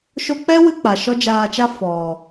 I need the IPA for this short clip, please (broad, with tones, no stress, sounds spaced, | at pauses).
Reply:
ʃ o˧ k͡p ɛ˦ w ɨ˧ k͡p a˨ ʃ ɔ˦ d͡ʒ aː˧ t͡ʃ a˦ f ɔ˨